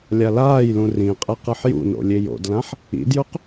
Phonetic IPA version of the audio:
lʲ a l aː j l ũ r ĩ qʼ e q ɯ ħ j ṵ n o̰ lʲ e j o̰ d l ã ħ | ḭ d j u q

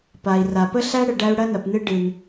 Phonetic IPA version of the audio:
p a˩ i̯ r a˩ p ə˦ ɬ æ˦ ɽ ə˨ ɖ æ˦ u̯ ɽ ɐ˦ n ɐ˨ p n ɨ˦ ɖ ɨ˨ n

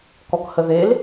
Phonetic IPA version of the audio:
k ɔ k h ə ð e l

